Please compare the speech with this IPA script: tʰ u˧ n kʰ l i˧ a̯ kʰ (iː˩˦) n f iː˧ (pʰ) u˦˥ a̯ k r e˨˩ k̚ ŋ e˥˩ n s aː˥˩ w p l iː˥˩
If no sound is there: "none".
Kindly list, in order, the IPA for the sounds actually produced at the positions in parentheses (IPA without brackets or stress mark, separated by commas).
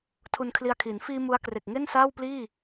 iː˩˦, m